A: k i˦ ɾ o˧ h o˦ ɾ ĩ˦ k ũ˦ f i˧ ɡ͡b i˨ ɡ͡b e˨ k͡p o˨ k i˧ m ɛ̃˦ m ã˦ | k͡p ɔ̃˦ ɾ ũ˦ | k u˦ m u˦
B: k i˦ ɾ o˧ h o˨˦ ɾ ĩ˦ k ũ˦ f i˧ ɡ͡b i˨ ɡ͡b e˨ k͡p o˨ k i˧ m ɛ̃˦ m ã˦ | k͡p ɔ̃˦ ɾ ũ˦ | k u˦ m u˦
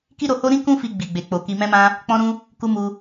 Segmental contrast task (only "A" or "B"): A